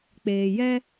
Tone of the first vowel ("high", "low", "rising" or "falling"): low